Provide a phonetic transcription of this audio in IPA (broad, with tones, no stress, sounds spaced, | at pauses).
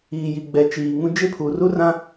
iː˨ j i˨ ɡ͡b ɛ˨ t͡ʃ iː˨ ŋ ũ˦ d͡ʒ e˦ pʰ u˨ r u˦ r ã˦